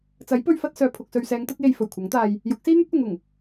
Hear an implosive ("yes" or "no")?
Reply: no